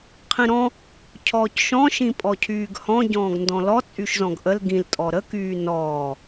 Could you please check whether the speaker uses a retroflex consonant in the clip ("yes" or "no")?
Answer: no